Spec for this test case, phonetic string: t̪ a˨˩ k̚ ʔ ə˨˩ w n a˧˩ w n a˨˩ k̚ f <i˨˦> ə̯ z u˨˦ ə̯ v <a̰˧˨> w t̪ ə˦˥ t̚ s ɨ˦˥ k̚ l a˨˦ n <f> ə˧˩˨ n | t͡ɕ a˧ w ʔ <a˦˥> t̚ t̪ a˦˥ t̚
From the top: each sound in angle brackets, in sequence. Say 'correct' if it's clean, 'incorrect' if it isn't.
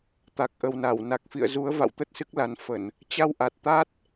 incorrect, correct, correct, incorrect

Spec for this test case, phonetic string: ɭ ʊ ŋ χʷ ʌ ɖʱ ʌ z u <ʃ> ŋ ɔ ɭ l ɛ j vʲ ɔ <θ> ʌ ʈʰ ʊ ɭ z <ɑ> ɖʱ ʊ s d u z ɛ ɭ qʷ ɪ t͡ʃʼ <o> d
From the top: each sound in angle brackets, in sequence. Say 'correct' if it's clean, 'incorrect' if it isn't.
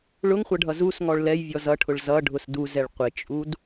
incorrect, incorrect, incorrect, incorrect

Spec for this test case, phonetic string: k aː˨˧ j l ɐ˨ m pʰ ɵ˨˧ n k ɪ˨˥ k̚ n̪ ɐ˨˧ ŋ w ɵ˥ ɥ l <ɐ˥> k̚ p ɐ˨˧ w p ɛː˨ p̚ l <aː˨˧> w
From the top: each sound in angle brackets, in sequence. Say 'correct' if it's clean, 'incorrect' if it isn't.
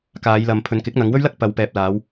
correct, correct

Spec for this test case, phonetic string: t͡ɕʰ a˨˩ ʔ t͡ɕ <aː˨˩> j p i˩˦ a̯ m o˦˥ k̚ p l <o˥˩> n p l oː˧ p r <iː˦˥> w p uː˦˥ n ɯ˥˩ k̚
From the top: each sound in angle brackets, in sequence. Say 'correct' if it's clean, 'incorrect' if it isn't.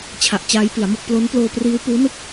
incorrect, incorrect, correct

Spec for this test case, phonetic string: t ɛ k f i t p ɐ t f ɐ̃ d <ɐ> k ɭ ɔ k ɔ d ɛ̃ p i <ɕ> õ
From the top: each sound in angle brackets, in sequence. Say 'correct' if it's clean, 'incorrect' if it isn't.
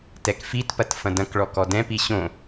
incorrect, correct

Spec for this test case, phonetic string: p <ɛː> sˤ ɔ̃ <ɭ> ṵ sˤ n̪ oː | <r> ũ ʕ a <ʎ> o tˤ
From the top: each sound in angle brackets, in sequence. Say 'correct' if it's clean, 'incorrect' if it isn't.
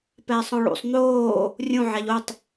correct, correct, incorrect, correct

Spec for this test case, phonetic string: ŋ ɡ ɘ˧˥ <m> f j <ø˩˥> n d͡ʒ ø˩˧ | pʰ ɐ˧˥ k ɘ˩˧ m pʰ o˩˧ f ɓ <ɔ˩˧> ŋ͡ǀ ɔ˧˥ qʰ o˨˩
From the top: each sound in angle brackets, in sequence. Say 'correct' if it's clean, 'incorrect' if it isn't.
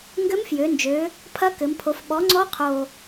correct, incorrect, incorrect

